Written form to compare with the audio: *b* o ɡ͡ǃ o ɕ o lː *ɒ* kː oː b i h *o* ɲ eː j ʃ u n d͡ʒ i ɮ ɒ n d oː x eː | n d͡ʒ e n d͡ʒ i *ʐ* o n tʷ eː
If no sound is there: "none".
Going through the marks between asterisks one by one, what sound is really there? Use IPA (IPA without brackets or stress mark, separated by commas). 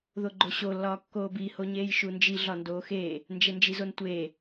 ð, ɒː, o, z